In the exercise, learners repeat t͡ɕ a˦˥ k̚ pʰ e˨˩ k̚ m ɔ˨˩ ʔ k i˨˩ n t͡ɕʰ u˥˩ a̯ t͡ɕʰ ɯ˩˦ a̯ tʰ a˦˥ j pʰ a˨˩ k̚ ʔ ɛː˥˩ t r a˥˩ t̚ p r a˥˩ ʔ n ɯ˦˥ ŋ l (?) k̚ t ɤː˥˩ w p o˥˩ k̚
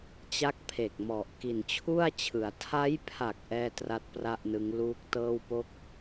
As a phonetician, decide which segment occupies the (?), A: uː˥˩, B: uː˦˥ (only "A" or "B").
B